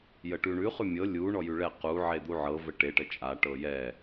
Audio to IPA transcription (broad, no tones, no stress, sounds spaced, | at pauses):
j ə ʈ ʉ ɳ ʉ χ ʉ mʲ ɤ lʲ u ɳ ɔ j ʉ ɭ ɛ q u ʕ e d̪ u ʕ ɤ v ə ʈ e ʈ ə t͡ʃʼ a ʈ ɤ j ɛ